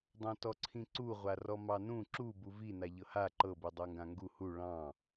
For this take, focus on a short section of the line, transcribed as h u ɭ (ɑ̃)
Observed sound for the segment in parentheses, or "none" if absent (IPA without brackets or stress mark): ɑ̃